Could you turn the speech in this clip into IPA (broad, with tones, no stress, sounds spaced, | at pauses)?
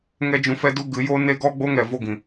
ŋ ɛ˦ d͡ʒ ũ˧ f ɛ˦ d u˦ ɡ ɨ˨˦ j o˦ n e˦ ɡ ɔ˦ ɡ͡b o˦ ŋ ɛ˨ v o˦˨ ɡ ĩ˨